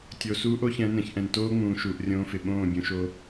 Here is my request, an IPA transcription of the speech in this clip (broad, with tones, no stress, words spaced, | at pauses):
tʲo˨suː˦ʔ o˦çɛ̃˨˦nɛ̃˨ç ʔɛ̃˨ntoː˦ŋ͡mũː˨ ʃuː˨ʔrʲõː˦fɪ˨ ɓõː˦˨ bʲũ˨ʃo˦